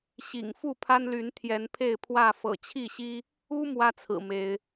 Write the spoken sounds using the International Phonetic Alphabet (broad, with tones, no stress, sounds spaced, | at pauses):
ɕ ḭ˨˩ ŋ f u˥˨ pʰ a˦ n l y˨˦ n t̪ʰ j ɛ˨˦ n pʰ e˥˨ ɪ̯ pʰ w ä˥˨ f ɤ̰˨˩ t͡ɕʰ i˥˨ ɕ i˦ | u˦ m w ä˦ t͡sʰ ɹ̩˨˩ m e˨˦ ɪ̯